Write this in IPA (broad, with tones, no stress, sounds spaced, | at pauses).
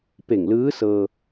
p e˧˩ ŋ l ɯː˧˥ s ɤː˧